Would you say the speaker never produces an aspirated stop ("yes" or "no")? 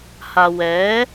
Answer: yes